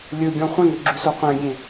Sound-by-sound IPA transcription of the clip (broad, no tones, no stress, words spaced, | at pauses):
lʲɵɡʲɔ̃ χʷẽŋøɡ͡ǁyso qʷẽɡʲẽ